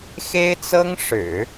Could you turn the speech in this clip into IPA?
xe˥ɪ̯t͡sɤ˥ŋʂɻ̩˨˩˦

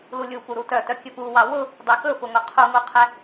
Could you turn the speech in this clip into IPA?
lulʲupu ɾutœtœ kʲɵpuwɑ wʊ | dˤɛkɵfʊŋo qʰuŋuqʰɛ

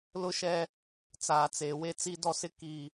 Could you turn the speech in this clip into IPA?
lʊ˦ʃɛ˦ | t͡saː˨t͡seː˨we˦ t͡si˦dɔ˦sɪ˦ ki˦

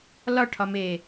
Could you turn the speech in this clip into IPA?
lɒʈʰɒme

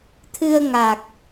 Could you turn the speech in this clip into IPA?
t̪ʰɨ˧ə̯ŋa˨˩k̚

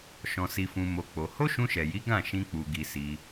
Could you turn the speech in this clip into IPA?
ʃɔ̃˧si˧fũ˧mo˧ k͡po˧ ho˦ʃũ˧ʃɛ˨ji˨˦ ɡã˦˨ʃĩ˧ k͡pu˧ɡi˧si˧

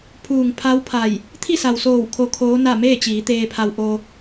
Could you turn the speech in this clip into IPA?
pʰuː˩ŋ pʰa˧˥w pʰa˧˩j | t̪ʰi˥˨sa˩wsoː˧˩w kʰo˧˥kʰoː˧˥na˥˨ meː˥˨t͡ɕiː˩˧ t̪eː˧pʰa˧wʔo˧

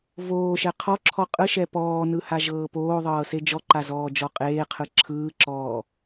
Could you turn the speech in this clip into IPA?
voːʃɛ qʰɔǁʰɔ qʼɯʃɛ pɔːnɯhaʒɤː poːðˤɤːse d͡ʒɔǃazɔːd͡ʒɔ qʼeːqʰɯ ǁʰɯːǁɔː

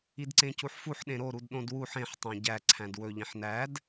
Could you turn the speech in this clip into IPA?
idǀẽcuħfuħ ɗẽɾo ɾudɗõdwuħ ẽħ tˤæ̃ɟæ ǀʰæ̃dwɵ ʎĩħnæd

